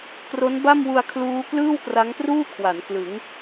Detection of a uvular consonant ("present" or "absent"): absent